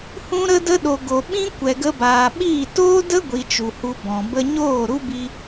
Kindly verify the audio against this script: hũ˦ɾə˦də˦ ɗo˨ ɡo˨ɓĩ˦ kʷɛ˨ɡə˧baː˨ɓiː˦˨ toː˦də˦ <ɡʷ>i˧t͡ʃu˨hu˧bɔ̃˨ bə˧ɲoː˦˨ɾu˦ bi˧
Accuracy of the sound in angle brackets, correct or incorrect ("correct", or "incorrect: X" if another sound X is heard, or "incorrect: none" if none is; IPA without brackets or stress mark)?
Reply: correct